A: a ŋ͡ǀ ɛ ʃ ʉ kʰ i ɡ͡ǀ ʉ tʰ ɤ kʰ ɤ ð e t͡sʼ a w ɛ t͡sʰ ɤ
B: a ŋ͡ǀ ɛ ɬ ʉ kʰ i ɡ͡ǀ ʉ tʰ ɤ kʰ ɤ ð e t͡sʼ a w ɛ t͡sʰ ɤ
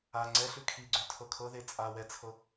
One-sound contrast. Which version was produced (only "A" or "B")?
B